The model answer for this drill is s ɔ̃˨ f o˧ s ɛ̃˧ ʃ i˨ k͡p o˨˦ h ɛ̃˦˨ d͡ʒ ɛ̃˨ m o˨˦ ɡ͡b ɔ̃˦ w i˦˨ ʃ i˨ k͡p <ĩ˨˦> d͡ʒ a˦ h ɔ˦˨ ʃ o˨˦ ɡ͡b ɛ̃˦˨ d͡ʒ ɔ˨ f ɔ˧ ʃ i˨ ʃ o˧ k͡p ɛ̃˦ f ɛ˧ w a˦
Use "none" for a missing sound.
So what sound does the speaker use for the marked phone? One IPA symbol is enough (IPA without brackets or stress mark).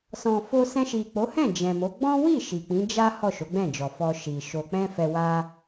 ĩ˨˦